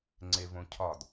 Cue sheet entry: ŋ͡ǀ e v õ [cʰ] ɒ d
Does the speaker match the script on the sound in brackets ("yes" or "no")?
yes